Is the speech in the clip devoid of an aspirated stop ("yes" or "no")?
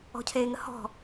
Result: no